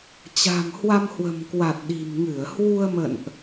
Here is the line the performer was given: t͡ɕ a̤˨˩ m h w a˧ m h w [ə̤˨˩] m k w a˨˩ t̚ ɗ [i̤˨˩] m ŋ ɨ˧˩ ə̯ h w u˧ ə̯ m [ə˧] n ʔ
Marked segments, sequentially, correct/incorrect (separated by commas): correct, correct, incorrect